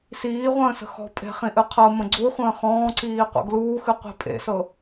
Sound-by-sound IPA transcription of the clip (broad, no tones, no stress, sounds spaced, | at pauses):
s iː ʁʷ ə̃ː s ə̤ x ɔ̤ pʼ e̤ χ ĩ ʔ ɨ qʰ ɤ m ə̃ ɡ͡ǀ u χʷ ə̃ː χ ɔ̃ː ǀ iː qʷ ə̰ ɡ l uː x ɨ qʷ i̤ pʼ ḛ s ɤ